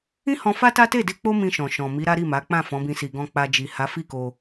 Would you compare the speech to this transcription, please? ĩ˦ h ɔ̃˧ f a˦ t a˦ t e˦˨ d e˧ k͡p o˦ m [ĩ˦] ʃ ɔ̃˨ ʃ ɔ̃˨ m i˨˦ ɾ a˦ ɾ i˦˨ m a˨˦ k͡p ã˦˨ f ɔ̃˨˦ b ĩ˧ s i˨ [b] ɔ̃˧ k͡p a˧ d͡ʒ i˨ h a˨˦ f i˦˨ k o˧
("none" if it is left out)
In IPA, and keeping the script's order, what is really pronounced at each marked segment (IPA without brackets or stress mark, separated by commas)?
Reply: ĩ˧, ɡ